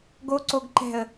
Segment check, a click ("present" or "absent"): present